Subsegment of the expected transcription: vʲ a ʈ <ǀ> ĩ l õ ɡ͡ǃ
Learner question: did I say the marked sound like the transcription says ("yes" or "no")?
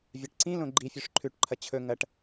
yes